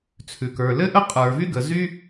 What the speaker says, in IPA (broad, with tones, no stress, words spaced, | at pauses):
t͡sʰʉ˩kə˞˩lɘ˥ʔə˥ qʼə˞˩vy˥ɡə˩ zy˥